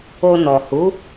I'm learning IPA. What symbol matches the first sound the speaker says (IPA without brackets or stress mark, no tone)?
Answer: o